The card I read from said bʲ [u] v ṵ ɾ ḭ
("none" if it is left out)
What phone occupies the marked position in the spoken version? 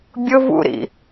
ʊ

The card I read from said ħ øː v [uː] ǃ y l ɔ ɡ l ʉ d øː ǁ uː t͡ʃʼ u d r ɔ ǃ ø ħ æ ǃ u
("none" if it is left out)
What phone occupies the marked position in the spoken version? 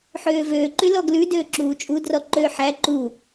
øː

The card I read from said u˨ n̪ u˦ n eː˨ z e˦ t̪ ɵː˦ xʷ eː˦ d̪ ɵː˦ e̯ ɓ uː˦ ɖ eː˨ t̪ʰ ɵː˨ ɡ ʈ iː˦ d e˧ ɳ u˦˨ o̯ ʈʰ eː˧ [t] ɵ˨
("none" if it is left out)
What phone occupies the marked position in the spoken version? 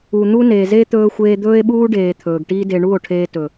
t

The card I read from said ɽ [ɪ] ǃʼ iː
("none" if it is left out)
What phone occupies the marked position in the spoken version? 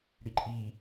i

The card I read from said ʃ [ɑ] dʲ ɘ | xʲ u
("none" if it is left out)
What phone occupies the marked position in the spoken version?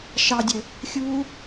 ɑ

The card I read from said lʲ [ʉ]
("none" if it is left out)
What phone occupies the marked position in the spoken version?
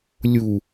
u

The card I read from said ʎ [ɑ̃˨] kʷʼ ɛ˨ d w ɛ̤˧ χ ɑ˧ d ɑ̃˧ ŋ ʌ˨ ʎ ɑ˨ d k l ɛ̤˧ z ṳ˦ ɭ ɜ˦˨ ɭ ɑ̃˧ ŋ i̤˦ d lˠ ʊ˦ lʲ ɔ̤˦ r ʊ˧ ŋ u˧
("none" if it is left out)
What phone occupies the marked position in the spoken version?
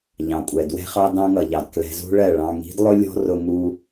ɑ̃˨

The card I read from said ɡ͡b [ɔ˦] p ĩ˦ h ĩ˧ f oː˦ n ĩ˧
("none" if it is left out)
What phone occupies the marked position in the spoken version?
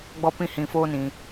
ɔ˦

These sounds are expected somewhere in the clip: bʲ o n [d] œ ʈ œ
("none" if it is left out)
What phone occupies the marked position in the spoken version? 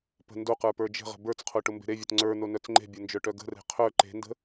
d͡ʒ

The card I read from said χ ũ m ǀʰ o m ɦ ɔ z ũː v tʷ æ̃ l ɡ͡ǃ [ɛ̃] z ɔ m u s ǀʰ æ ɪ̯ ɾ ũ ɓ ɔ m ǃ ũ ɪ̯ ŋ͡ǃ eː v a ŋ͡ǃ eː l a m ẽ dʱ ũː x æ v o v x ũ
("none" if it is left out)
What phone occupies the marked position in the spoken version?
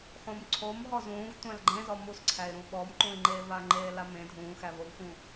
ẽ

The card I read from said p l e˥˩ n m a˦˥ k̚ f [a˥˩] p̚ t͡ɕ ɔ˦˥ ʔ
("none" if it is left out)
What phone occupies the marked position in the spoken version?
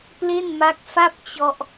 a˥˩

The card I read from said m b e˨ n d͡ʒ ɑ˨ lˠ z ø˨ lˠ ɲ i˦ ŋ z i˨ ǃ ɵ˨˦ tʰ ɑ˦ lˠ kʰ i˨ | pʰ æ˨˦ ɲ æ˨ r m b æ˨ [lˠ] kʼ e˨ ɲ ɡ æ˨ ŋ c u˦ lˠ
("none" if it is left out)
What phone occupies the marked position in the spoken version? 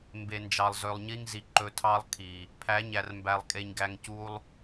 lˠ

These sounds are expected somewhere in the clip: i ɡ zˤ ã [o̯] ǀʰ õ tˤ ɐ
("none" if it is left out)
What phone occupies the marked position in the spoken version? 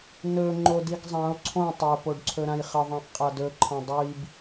o̯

